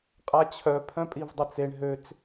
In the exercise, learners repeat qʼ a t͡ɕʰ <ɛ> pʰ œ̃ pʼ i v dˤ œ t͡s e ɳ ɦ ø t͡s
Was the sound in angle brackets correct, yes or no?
no